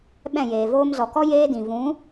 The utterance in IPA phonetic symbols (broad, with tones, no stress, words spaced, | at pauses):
ɓɛ̃˦˨jeː˨ voː˧mzɔ˨kɔ˦ jeː˦dĩ˨ vũ˨˦